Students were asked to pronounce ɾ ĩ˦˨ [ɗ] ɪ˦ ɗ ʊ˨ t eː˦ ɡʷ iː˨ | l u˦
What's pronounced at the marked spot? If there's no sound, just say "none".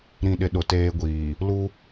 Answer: ɗ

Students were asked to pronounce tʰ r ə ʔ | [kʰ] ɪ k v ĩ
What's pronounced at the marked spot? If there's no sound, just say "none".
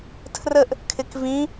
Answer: kʰ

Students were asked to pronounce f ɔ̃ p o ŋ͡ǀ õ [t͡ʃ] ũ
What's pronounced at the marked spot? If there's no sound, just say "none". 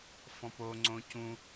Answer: c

